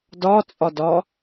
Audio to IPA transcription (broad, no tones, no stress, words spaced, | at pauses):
dɒt͡sʼɒdɒ